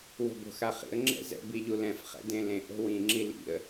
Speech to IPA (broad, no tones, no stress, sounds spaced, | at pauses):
w o̤ b o̤ x a χ ḭ ə̯ ŋ͡ǁ ɛ̰ z ɛ̰ b i ʎ u l ɛ̃ f χ ɛ̰ d ẽ l ẽ ʔ o̤ w ĩ ŋ͡ǁ i l ḭ ə̯